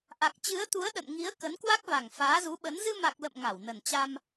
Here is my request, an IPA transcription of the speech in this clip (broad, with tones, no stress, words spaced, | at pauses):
ʔa˨˩k̚t͡ɕɨ˨˦ə̯t̪u˨˦ə̯ ɗə̰˧˨nŋi˨˦ə̯ kə˨˦nkwa˦˥k̚va˨˩ŋ faː˨˦zu˨˦ɓə˨˦n zɨ˧ma˨˩k̚ lə̰˧˨m ŋa˧˩wnə˨˩nt͡ɕa˧m